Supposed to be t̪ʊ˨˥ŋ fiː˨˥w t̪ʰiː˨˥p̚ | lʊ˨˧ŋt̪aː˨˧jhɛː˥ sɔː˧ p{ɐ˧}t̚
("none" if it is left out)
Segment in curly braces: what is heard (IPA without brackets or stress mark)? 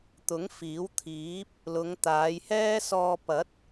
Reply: ɐ˨˥